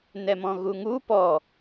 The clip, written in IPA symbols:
n ɛ m ɔ̃ ɣ u ŋ u p ɔ

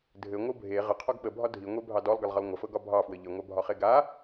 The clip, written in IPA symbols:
dʱ ɘ ŋʷ ɤ bʱ e ʁ ə qʰ ɔ ɡ ɓ ə bʱ ɒ dʱ i ŋʷ e bʱ ɑ d ɔ lˠ ɡ ɘ lˠ ʁ ə lˠ ŋʷ ə f ɤ ɡ ɒ bʱ ɑ f w ɘ ʎ ɘ ŋʷ a bʱ ɒ χ e ɡ a

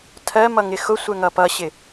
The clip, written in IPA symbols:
tʰ ɜ m ʌ ŋ ɪ x ʊ sʷ ɛ ŋ ʌ p ʌ ɕ ɪ

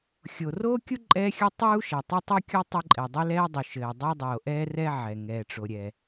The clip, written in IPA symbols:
xʲ o˩ r oː˥ kʲ u˥ ǃʼ ɛː˥ xʲ u˥ tˤ uː˥ ʃ ɛ˩ tˤ ɘ˥ tˤ o˥ kʲ o˥ tˤ ɘ˥ ǃʼ ɛ˩ dˤ ɘ˥ l ɛː˥ dˤ u˩ ʃ ɘː˩ dˤ ɛ˥ dˤ oː˩ ʔ ɛː˥ r ɛ˥ ʕ ɛ˩ ŋ ɛː˩ ʈ͡ʂ o˩ ɾʲ ɛ˩

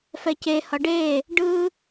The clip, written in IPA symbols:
f ɛ c e h ʌ ɖ e | ɖ ɯ

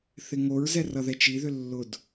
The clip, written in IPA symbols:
θ ɪ ŋ o ɹ z ɛ r ʌ ð ɛ t͡ʃ i ð ʏ lː ʊ d

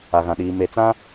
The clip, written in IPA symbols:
a˨ ɣ ã˨ ɗ iː˨ m e˨ t͡s ã˦

